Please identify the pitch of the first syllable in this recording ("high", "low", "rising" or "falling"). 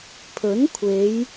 rising